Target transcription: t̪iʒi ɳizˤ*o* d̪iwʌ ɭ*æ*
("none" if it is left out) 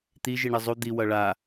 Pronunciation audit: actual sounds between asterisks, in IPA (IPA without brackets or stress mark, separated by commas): u, a